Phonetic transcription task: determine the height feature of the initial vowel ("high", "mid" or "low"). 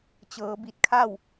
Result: mid